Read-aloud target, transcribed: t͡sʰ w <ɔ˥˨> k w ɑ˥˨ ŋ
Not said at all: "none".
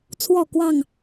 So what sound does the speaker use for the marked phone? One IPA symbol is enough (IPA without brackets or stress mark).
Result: ɔ˥˨